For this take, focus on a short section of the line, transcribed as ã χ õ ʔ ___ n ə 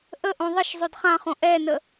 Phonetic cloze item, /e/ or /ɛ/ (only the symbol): ɛ